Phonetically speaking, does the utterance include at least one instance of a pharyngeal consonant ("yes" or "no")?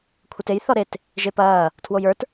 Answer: no